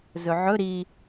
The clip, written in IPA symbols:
z ɵ ʕ ɵ ɾ i

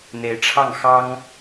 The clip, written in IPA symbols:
n̪ e˧˥ ɪ̯ ʈ͡ʂʰ ɑ˥˩ ŋ x ɑ˥ ŋ

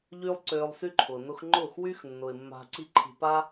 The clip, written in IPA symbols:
ʎ yː˦ lˠ ǀ øː˧ lˠ s y˦ ǃʰ ʊː˨ n ʊ˧ x ŋ͡ǃ ʊː˦˨ x w y˦ x nː ʊ˨ ɪ̯ mː a̤˧ ǀ i˦ ǃʰ i̤˧ p a˦

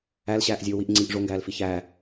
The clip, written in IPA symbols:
æ l ɕ æː ʔ zʲ oː w i ʔ ŋ͡ǀ i ʔ ʐ o ŋ ɡ æː l f i ç æː

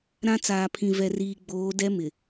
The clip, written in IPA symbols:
ɾ ã˦ t͡s aː˨ pʰ ĩ˨ v ɛ˨ r iː˨ ɡ͡b oː˨˦ d ɛ˦ m ɪ˨

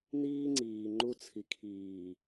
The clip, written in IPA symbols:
n iː˦ ŋ͡ǀ iː˨ ŋ͡ǃ u˦ t͡sʰ i˨ kʰ iː˨

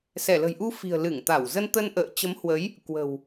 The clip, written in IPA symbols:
s ɛ˧˩ l ə̤˨˩ j ʔ u˧ f i̤˨˩ ə̯ l ɨ˧˩ ŋ t̪ a˧˩ w z ə˧ n t̪ ə˧ n ʔ ə̰ː˧˨ t͡ɕ ə˨˦ m h w ə˨˦ j | k w ə̤˨˩ w

